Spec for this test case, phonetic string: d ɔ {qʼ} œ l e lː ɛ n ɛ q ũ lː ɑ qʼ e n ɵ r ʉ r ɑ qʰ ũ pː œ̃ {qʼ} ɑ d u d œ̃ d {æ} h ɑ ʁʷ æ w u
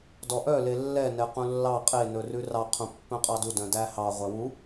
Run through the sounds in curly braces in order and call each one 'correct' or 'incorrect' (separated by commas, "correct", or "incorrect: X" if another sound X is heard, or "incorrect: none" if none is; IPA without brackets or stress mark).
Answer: incorrect: ʔ, correct, correct